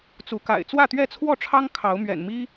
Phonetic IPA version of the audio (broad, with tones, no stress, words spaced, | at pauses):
t͡su˨˦ka̰˨˩ɪ̯ t͡swä˥˨t̪ɥɛ˥˨t͡sʰwɔ˥˨ʈ͡ʂʰɑ˦ŋ kʰɑ˨˦ʊ̯mɥɛ̰˨˩nmi˦